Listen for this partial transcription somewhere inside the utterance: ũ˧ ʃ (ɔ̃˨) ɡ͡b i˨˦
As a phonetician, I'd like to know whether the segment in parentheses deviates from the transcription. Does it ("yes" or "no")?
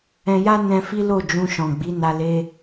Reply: no